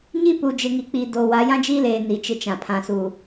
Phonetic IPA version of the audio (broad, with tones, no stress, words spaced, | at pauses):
ɲi˦pu˨ d͡ʒɪ˨ŋi˨k͡piː˨ do˨wa˨˦ jã˦d͡ʒiː˦leː˨ ni˨t͡ʃɪ˦t͡ʃã˨ pʰã˨suː˨